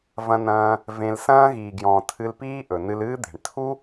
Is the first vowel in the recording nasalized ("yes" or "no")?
yes